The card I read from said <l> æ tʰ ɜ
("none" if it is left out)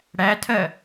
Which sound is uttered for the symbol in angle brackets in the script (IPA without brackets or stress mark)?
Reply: ɽ